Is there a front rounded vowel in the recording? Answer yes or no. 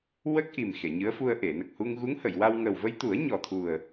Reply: no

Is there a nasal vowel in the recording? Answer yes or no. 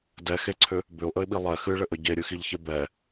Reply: no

